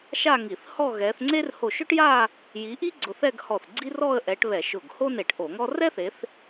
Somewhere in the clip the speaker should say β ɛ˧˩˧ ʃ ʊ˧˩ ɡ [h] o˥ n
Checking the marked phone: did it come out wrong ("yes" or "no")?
no